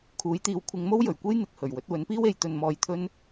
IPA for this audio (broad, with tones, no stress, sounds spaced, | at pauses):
kʰ uː˨˥ j t̪ iː˨˥ w kʷʰ ɪ˨˧ ŋ m o˥ w j ɵ˨˩ ɥ kʷ e˥ j n̪ ɪ˨ k̚ h ɵ˨˩ ɥ w ɵ˨˥ t̚ w ɵ˨˥ n p iː˥ w e˨˥ j t̪ ɵ˧ n m ɔː˧ j t̪ʰ ɵ˥ n